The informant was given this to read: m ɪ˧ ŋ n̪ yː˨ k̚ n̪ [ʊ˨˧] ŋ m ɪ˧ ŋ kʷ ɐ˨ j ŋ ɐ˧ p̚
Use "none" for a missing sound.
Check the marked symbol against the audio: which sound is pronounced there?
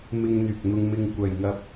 ʊ˧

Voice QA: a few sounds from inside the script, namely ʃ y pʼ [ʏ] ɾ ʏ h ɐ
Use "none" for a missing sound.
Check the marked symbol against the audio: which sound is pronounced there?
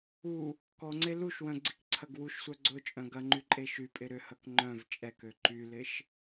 ɪ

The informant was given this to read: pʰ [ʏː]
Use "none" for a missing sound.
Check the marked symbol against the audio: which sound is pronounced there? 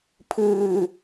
ɨː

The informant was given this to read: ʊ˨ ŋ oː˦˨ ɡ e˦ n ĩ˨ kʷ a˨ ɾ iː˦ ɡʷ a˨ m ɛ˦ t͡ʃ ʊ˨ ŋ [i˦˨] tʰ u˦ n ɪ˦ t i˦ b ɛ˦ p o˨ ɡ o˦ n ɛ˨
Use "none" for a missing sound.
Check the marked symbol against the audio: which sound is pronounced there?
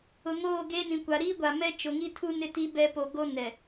i˦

